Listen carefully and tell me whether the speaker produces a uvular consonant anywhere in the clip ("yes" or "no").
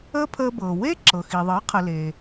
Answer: yes